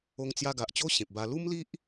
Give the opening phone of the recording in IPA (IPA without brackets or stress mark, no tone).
o